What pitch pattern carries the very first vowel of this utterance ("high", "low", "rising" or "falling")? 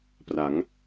rising